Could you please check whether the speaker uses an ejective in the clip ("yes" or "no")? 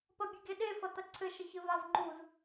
no